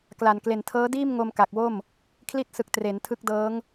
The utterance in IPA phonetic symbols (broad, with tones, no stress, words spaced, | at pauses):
kla˨˩nkle˨˩n tʰɤː˦˥diː˥˩mŋo˧m ka˨˩k̚wo˥˩m | kʰli˦˥t̚sɯ˨˩k̚ tre˩˦ntʰɯ˦˥k̚dɤː˦˥ŋ